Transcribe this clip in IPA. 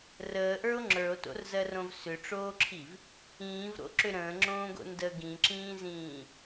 r əː ʔ ə˞ o̯ ŋ͡ǁ ə˞ o̯ t o̰ r z ɜ r õ v s ʏ ʈ͡ʂ oː ǁʰ i v | ĩː v ɾ o̰ ǁ ʏ ɾ ə̃ː ŋ͡ǁ õː ɡ o̰ n d ə ɡ ĩ ǁ ĩː z ĩː

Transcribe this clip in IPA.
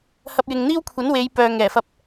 h ɐ˧ p̚ j ɪ˨ ŋ n̪ iː˥ w kʷʰ ɐ˨˥ n w e˨˧ j p œː˨ ŋ ɛː˨˩ f ɐ˧ p̚

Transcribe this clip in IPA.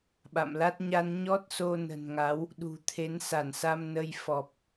ɓ a̰˧˨ m l a˦˥ t̚ ɲ a˧ n ɲ ɔ˦˥ t̚ s o˧ n ə̤˨˩ n ŋ a˨˦ w | ɗ ṳ˨˩ t̪ʰ e˨˦ n s a˧˩ n s a˧ m n ə˧ j f ɔ˨˩ p̚

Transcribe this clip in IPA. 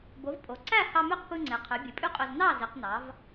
b o˩˥ v pʼ o˩ ǀ æ˥˩ h ɑ˧ m ø˥˩ q p ɯ˧ ŋ͡ǀ e˩ qʰ ø˩˥ bʲ ɯ˩ pʼ y˥ qʼ ø˧ z n ɑ˥˩ z i˩˥ q n ɑ˩˥ v

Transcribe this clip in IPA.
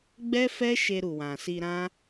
ɡ͡b ɛ˦ f ɛ˦ ʃ e˧ ɾ u˨ w ã˨ s i˧ ɾ ã˦

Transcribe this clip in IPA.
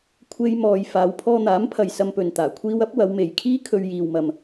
kʷʰ e˥ j m ɔː˧ j f aː˨˧ w pʰ ɔː˧ n̪ aː˨˥ m pʰ ɐ˨ j s ɐ˧ m p ɵ˨ n t̪ aː˨˩ kʷʰ iː˧ w ɐ˨˥ p̚ w ɐ˨˧ w m e˨ j kʰ iː˥ kʰ ɵ˧ ɥ j iː˧ w m ɐ˧ m

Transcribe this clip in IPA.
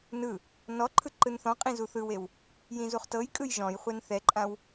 n ɯ | n ɔ ǃʰ ɯ ǃ ɯ n θ ɔ̃ qʼ ĩ z u θ ɯ w e w | j ĩ z u χ t ɤ j kʼ ɯ j ʒ ɔ̃ j χʷ ɛ n θ ɛ ǃʼ ã w

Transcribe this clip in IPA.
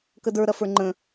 k ə d ə˞ ɾ ɐ f ə˞ ŋ͡ǃ ə̃

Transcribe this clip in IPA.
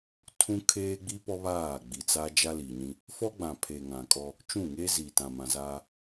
tʰ ũ˦ kʰ eː˦ ɡ͡b i˦ p ɔ˦ β aː˦˨ ɡ͡b i˨ t͡s a˦ d͡ʒ a˦ l i˨ ɲ ĩ˦ | f ɔ˦ ɡ͡b ã˨ pʰ e˨ ŋ ã˨ kʼ ɔ˦ | t͡ʃ ũ˦˨ ŋ eː˦ z i˨ t ã˨ m ã˨ z aː˦

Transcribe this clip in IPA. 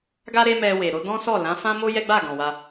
ɡ a˦ ɾ e˦ m ɛ˧ w e˨ ɾ o˨˦ d ɔ̃˦ s ɔ˦˨ l ã˨˦ f ã˦ m o˦ j ɛ˦ ɡ͡b a˦˨ ɡ ɔ̃˨ w a˧

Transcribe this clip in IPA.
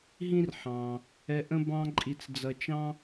ɦ ĩ˥ r ħ ɑ̃ː˩ | ɛ˧ ʔ ə̃˥ b ɑ̃˥ ǃʼ i˧ t͡s d͡z ʌ˧ t͡ʃ ɑ̃˥

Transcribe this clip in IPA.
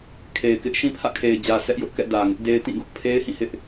kʰ e˨ ɪ̯ k ɪ˦ ʔ ʃ ĩ˦ pʰ ä̰˦˨ kʰ e˨ ɪ̯ d͡ʑ ä˨ s ɛ˦ ʔ j ʊ˦ ʔ k ɛ̰˦˨ d ä˨ ŋ ɪ˦ ʔ d e˦ ɪ̯ t ĩ˦˨ ɡ ʊ˦ ʔ pʰ e˦ ɪ̯ h ĩ˦˨ h ɪ˦ ʔ

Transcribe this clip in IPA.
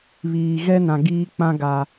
β iː˨ ɣ ɛ˦ n ã˨ ɡ iː˦ k͡p ã˦ ɡ a˨

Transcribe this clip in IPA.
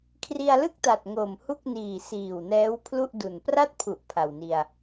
kʰ r i˧ a̯ l ɯ˥˩ k̚ t a˨˩ t̚ ŋ o˨˩ m h u˥˩ k̚ n iː˨˩ s iː˨˩ w n ɛː˦˥ w pʰ l u˥˩ ʔ d u˨˩ n p r a˥˩ t̚ pʰ u˨˩ ʔ pʰ a˨˩ w n i˧ a̯

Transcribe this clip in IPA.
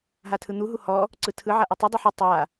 ɦ a tʰ ɯ n̪ u ɦ u h ɔ | ǀ ɯ tʰ ɯ ʕ a ʔ u tˤ u dˤ ɯ ħ ɯ tˤ a

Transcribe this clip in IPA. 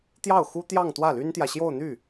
t̪ j ɑ˥˩ ʊ̯ x u˥ t̪ j ɑ˥˧ ŋ t̪ w ä˥˩ l y˥ n t̪ j ä˨ ɕ j o˥˧ ʊ̯ n̪ y˥˩

